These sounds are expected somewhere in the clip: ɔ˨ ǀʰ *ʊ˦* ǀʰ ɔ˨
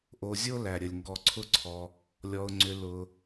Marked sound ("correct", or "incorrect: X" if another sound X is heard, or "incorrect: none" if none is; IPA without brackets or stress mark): correct